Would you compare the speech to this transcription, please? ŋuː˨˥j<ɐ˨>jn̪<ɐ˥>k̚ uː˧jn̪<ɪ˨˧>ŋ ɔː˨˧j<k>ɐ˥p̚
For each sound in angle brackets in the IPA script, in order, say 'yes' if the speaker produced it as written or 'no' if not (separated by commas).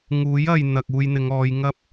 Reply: yes, no, yes, no